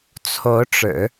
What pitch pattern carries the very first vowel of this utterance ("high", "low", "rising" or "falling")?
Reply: rising